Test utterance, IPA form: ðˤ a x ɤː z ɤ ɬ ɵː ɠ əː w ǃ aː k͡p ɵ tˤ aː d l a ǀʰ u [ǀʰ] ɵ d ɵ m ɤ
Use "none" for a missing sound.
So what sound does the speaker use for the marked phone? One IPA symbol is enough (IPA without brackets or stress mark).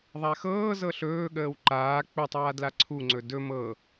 ŋ͡ǀ